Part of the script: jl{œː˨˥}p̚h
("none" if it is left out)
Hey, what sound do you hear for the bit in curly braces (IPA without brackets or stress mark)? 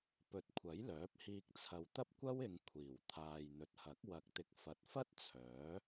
œː˨˥